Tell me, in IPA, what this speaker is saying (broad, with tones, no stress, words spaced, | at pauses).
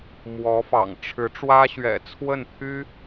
mwɔ˧˥fɑ̰˨˩ŋ ʈ͡ʂʰɻ̩˧˥ ʈ͡ʂwä˥ɕɥɛ̰˨˩t͡sʰwə˥˩n pʰy˥